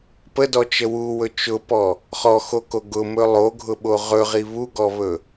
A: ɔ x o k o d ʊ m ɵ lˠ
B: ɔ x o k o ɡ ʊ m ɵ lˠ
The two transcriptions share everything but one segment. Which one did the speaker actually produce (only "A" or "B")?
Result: B